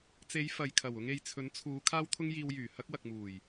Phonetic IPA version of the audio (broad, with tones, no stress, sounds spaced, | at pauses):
t͡s e˨˧ j f ɐ˨ j kʰ ɐ˨˩ w ʊ˧ ŋ e˨ j t͡sʰ ɵ˨˥ n t͡sʰ uː˨˧ kʰ aː˥ w t̪ʰ ʊ˥ ŋ j iː˧ w j yː˨˩ h ɐ˥ k̚ w ɐ˨ k̚ m uː˨˩ j